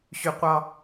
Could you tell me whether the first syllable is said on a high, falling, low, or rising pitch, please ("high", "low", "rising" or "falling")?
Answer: low